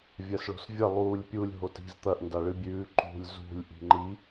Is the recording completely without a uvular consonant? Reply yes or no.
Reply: yes